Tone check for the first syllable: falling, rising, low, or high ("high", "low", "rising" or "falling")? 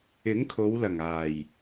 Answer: rising